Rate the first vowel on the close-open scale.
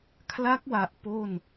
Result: open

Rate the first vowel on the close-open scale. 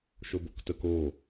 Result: mid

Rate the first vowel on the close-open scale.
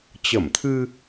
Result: mid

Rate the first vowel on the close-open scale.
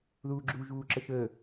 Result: close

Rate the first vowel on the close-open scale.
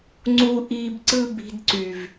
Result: close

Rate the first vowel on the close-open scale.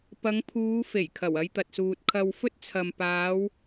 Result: open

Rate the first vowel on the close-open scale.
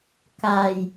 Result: open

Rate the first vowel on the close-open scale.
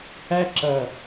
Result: open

